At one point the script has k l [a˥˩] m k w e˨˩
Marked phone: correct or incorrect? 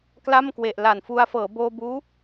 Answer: correct